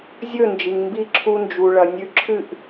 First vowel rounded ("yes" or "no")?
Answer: yes